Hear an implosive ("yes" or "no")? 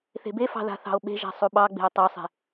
yes